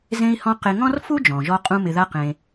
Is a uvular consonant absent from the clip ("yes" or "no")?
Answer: no